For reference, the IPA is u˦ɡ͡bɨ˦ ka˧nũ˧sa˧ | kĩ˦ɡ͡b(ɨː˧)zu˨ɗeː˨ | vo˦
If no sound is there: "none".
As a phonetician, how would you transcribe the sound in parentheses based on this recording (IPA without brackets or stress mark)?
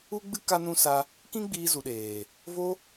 iː˧